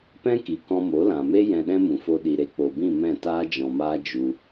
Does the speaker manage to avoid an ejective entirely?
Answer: yes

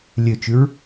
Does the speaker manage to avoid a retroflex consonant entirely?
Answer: yes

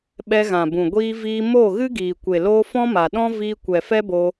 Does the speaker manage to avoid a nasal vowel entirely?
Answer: no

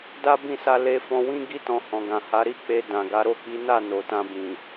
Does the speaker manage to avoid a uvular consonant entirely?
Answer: yes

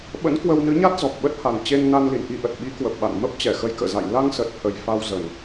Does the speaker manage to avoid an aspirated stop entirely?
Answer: yes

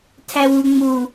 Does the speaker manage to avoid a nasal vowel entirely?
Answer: yes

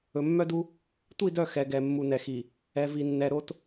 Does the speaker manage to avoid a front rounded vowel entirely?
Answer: no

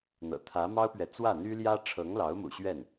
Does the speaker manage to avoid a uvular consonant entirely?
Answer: yes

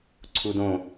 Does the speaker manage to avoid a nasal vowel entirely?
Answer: no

